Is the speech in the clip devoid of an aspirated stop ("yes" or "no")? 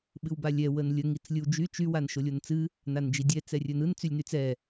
yes